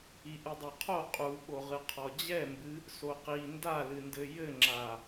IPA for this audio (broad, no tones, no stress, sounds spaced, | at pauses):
i ʔ ɨ dˤ a qʰ o qʼ u ɓ o ʁ ɨ qʰ ɔ d͡ʑ ɛ m b ɨ | s o q i n d a l ɨ n d ɘ j ɘ ŋ͡ǁ a